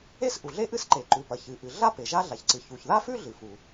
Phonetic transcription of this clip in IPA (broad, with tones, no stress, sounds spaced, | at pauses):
e˥ s ʔ u˩ ɮ e˥ ʔ ɨ˥ s ǃ e˩ ǃ ʉ˩ p ɐ˩ ç ɨ˩ ʔ ɨ˩ ɮ a˥ p e˩ ʒ a˥ ɮ a˩ ç ǀ ɨ˩ ç u˩ ç ð a˥ f ʉ˥ ɮ ɨ˩ f u˩